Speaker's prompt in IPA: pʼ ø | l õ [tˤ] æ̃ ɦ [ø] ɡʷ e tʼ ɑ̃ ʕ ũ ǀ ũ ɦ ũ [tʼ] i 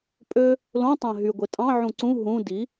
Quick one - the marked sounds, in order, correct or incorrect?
correct, incorrect: y, incorrect: d

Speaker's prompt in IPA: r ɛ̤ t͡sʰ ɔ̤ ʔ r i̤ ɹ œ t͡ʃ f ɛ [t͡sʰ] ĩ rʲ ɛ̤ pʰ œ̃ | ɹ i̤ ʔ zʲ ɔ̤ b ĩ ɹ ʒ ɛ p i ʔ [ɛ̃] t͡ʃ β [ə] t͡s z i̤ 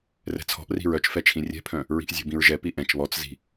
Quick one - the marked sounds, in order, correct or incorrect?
incorrect: t͡ʃʰ, correct, incorrect: ɔ

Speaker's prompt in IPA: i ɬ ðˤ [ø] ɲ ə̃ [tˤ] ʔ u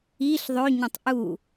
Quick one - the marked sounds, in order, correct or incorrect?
correct, correct

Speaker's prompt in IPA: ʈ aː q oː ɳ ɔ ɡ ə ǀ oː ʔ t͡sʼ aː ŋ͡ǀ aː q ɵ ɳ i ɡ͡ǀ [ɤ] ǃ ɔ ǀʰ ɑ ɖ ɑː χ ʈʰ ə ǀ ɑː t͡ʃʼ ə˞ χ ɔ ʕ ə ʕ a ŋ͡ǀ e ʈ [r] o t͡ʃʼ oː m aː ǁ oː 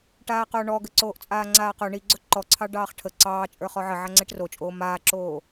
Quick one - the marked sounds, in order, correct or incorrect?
incorrect: ɵ, correct

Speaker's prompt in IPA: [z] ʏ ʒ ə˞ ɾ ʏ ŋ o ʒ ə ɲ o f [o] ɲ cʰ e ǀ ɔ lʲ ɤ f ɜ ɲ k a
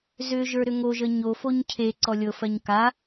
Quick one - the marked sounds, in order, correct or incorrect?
correct, correct

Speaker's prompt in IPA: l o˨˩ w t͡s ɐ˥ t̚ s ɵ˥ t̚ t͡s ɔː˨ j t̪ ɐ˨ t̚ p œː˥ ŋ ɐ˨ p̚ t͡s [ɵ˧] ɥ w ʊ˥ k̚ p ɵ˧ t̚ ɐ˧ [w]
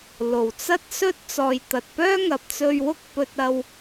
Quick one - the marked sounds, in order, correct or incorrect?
correct, correct

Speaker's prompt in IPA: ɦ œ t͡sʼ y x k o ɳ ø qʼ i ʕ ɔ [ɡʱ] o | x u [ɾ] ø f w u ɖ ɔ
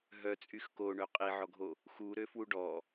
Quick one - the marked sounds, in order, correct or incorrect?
correct, correct

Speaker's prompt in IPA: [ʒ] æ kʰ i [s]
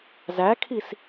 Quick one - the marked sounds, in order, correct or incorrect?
incorrect: z, correct

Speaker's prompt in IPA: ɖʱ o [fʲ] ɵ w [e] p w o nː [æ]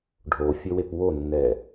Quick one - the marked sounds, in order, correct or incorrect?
correct, correct, incorrect: ɛ

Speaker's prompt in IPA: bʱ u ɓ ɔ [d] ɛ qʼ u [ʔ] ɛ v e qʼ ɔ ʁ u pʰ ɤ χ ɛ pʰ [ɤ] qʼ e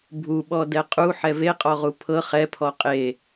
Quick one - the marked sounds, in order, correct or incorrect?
correct, incorrect: ħ, incorrect: ɔ

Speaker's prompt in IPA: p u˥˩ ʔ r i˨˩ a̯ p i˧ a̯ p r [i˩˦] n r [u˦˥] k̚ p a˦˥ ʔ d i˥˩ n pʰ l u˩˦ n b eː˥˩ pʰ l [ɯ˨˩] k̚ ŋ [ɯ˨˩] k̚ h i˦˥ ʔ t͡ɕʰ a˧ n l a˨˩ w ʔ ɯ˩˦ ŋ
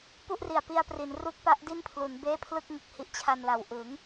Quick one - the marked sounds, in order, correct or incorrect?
correct, correct, incorrect: ɯ˥˩, correct

